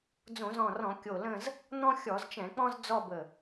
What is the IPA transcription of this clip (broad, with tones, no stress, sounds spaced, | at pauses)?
d͡z õ˧˩˧ z ɔ̃˧˩ r ɔ̃˧˩˧ kʲ o˧˩ l ə̃˥˧ z | n̪ ɔ̃˥ xʲ ɔ˧˩˧ z t͡ʃ ɛ̃˧˩˧ k͡p ɔ̃˥ z d͡z ɔ˥˧ b ə˧˩